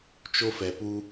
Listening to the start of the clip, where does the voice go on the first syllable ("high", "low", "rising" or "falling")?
high